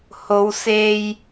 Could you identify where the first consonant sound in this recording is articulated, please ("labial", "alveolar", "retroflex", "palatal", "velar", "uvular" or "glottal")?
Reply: glottal